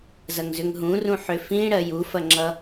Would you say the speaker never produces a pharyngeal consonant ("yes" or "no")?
no